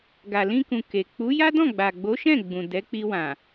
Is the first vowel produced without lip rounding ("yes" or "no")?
yes